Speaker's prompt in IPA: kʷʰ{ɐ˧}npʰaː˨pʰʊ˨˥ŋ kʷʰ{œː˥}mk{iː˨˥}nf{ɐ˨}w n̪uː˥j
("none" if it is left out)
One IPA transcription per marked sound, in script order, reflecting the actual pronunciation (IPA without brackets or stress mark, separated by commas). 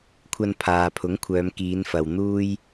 ɐ˧, œː˨˧, iː˨˧, ɐ˨